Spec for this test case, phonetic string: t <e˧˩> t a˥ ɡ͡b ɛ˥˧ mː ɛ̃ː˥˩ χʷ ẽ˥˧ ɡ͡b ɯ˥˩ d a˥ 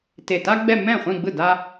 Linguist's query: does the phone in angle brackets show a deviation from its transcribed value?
no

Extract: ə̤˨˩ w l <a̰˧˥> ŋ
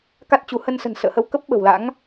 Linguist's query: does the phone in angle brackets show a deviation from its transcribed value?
no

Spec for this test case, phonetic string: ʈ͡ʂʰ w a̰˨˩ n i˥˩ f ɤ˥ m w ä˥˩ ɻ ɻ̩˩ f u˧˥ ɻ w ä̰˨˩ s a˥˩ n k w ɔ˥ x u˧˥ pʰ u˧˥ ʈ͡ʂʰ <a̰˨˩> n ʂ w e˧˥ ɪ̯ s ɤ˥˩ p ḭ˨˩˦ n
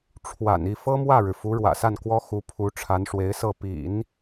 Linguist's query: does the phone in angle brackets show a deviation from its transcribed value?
yes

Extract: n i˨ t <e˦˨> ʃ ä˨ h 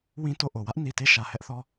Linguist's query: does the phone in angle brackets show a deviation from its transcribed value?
no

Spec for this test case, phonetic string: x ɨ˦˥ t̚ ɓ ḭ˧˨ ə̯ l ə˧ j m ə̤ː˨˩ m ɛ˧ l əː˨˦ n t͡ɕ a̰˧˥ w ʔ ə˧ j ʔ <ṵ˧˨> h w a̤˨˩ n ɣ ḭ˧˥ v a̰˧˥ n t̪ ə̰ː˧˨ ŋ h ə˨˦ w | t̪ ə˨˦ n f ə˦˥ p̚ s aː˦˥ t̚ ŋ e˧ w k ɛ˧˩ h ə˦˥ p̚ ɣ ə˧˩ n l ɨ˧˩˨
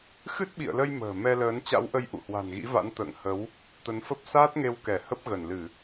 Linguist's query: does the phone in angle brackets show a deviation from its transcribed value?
no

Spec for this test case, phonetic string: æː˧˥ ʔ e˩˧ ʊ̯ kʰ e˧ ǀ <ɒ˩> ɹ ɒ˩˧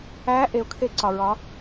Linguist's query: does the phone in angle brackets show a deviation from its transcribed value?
no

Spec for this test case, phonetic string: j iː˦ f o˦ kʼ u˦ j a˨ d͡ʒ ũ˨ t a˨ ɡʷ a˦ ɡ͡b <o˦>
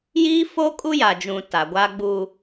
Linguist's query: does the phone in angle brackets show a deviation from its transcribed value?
yes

